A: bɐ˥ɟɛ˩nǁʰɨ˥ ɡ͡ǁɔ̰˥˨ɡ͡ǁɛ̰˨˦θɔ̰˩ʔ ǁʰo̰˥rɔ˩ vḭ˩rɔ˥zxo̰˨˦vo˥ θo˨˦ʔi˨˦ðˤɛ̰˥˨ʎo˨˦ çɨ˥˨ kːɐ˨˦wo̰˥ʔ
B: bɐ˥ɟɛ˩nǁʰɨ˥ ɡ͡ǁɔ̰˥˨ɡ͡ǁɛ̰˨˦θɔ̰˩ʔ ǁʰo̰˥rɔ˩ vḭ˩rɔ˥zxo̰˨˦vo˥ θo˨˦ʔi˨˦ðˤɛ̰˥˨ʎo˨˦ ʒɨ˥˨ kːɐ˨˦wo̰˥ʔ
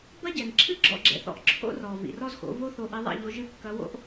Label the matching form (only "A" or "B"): B